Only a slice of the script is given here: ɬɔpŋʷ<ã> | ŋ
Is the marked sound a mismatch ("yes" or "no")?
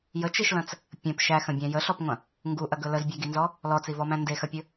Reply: yes